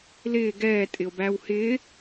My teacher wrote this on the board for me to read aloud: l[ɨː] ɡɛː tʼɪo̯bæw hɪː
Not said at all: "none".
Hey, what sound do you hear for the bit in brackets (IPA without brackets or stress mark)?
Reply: ɪː